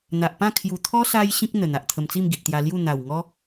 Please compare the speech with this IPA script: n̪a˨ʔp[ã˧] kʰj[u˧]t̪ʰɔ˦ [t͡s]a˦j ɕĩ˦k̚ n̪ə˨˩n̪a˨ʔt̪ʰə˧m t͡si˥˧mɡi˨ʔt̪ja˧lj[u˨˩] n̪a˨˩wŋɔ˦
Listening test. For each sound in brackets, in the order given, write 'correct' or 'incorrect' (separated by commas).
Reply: incorrect, incorrect, incorrect, incorrect